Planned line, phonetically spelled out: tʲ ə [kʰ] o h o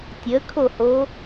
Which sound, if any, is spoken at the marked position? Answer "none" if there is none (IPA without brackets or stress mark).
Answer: kʰ